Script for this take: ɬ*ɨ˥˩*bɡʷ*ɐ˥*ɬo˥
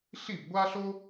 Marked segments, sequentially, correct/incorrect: incorrect, incorrect

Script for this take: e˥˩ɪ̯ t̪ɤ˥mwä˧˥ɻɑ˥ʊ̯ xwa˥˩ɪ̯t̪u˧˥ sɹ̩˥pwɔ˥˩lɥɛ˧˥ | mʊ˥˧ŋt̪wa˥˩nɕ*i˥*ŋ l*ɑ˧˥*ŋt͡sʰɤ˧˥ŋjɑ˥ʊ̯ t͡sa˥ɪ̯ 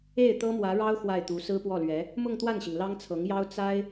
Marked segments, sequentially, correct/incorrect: incorrect, incorrect

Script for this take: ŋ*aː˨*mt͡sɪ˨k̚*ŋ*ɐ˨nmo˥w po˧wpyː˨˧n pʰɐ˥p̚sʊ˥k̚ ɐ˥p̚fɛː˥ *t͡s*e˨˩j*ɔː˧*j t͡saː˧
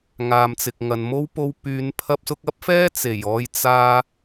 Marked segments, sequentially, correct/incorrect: correct, correct, correct, correct

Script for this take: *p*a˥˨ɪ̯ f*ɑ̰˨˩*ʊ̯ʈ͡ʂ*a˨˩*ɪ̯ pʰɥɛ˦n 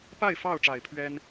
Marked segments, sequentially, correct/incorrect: correct, incorrect, correct

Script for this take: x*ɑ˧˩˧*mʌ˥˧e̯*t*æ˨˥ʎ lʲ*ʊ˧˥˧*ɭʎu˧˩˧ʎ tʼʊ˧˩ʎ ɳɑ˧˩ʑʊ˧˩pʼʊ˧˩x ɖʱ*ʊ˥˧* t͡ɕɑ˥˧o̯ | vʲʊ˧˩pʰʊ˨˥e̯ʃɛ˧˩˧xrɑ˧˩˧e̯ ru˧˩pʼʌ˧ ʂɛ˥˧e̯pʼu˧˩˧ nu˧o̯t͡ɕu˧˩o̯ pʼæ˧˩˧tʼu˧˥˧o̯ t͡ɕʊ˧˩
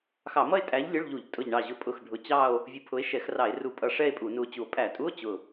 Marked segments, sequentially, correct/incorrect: correct, incorrect, correct, incorrect

